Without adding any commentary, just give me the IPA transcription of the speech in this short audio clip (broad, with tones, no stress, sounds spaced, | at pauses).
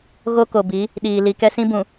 ɣ o˦ k o˨ b i˨˦ | ɗ iː˨ l i˨ k ɛ˦ s ĩ˦ b ũ˨